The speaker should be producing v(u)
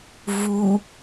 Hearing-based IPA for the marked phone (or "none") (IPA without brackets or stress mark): u